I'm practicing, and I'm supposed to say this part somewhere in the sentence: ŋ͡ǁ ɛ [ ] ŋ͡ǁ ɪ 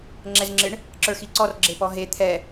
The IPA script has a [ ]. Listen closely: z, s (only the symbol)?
z